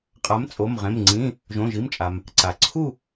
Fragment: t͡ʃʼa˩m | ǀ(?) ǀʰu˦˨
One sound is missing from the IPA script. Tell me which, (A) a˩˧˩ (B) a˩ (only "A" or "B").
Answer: B